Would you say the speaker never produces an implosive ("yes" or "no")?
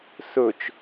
yes